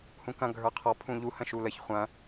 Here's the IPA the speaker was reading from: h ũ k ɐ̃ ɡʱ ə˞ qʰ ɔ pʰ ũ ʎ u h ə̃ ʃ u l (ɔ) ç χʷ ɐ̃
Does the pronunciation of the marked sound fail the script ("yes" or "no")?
yes